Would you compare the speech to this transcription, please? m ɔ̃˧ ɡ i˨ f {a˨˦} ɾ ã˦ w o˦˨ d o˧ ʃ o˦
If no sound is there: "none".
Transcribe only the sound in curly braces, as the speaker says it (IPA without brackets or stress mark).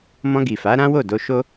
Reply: a˨˦